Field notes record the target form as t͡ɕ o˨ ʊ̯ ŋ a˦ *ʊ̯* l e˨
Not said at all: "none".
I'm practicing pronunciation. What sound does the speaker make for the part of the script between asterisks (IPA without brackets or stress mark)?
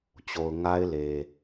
ɪ̯